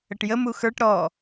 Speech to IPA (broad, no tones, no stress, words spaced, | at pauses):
əʈjəmu xə˞ʈ ɾɔ